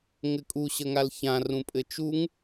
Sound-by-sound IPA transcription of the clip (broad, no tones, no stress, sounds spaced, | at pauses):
ŋ ɘ kʼ u ɕ ə ŋ a l ç ã r ũ pʼ ɘ t͡ʃ u ŋ